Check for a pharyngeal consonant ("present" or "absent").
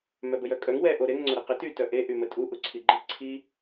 absent